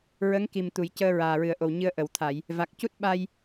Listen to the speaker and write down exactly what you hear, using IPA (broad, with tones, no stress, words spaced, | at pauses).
ɹə˧˥ŋki˨˩mt̪u˨˩˨j cəː˧ɹaː˨˩ɹɨ˨˩ə̯ʔo˨˩w ɲɨ˧ə̯ʔə˨˩˨wt̪ʰa˨˩˨j | va˨˩k̚cu˦˥t̚ɓa˧j